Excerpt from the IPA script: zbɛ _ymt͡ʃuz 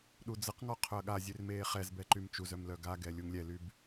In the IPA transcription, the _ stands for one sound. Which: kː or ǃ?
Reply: ǃ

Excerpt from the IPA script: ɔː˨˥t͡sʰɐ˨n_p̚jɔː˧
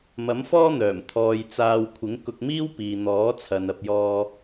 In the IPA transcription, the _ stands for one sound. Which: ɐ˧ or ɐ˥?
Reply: ɐ˧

